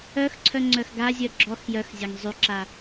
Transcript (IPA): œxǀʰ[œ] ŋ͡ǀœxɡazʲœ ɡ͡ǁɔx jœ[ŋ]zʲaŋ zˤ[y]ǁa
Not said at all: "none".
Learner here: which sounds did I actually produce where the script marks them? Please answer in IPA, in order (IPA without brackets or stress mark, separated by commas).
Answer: œ, x, y